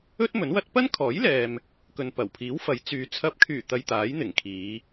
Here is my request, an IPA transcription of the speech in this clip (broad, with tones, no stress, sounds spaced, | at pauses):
ɵ˥ t̚ m ɵ˨˥ n w ɐ˥ t̚ p ɐ˥ n kʰ ɔː˨˥ j l ɛː˨ m | k ɵ˨ n p ɐ˨˩ w pʰ iː˨˥ w f ɐ˨˥ j t͡s yː˨˧ t͡sʰ ɐ˨˥ p̚ kʰ yː˨˩ t̪ ɐ˧ j t̪ aː˨˥ j n̪ ɪ˨˩ ŋ kʰ iː˨˧